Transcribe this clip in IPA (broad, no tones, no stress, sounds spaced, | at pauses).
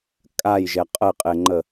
kʼ a j ʒ ɛ qʼ ə ɪ̯ qʼ e ŋ͡ǃ ə